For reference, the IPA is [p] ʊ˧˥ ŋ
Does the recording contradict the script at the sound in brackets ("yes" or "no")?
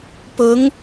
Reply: no